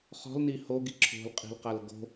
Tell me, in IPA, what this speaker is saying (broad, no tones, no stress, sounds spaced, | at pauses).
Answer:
χ ɔ̤ l n i h o ɡ i ǁʰ o̤ l qʼ i̤ l q a l ɡ o̤